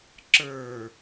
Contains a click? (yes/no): yes